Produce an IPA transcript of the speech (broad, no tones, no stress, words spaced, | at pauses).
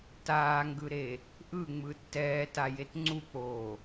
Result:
taːŋɡɯɾe | ʔɯŋ͡mɯ tːɛːtajet ŋ͡ǀuk͡poː